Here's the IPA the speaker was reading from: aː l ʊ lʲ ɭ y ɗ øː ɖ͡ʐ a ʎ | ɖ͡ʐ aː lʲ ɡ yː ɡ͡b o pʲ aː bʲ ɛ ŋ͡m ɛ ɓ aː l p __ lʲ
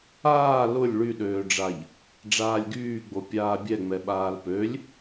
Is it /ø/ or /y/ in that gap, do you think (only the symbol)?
ø